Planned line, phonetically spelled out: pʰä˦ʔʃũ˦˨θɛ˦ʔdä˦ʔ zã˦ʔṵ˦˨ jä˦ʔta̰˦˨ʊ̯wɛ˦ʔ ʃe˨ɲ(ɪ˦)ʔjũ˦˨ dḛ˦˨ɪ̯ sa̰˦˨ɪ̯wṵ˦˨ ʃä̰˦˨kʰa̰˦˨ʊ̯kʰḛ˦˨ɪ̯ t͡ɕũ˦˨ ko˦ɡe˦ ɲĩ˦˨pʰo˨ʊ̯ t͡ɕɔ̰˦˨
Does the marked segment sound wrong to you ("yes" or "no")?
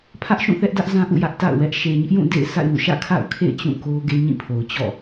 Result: no